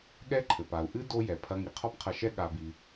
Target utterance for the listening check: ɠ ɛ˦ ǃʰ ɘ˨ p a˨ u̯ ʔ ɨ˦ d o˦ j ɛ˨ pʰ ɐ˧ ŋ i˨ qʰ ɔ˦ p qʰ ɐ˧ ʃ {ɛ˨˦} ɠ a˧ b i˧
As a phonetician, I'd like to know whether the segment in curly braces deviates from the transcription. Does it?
yes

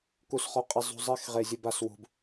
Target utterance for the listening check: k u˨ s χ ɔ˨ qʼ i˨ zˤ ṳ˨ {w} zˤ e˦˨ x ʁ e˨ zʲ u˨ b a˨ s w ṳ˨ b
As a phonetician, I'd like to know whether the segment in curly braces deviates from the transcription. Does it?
yes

